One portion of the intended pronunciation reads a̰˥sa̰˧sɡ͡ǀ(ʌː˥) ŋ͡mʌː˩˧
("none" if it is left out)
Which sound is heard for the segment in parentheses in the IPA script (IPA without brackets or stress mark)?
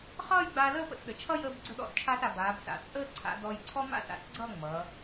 ʌː˥˧